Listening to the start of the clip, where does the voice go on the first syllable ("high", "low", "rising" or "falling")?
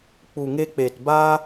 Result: low